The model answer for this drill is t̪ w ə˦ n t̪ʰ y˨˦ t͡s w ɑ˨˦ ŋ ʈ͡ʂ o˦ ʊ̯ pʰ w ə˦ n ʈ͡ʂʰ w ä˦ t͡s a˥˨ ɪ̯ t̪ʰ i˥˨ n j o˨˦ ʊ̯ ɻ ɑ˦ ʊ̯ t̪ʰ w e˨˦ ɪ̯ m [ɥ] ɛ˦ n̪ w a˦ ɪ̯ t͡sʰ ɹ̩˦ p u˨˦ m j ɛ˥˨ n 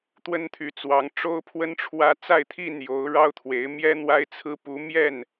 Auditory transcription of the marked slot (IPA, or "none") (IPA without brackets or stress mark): j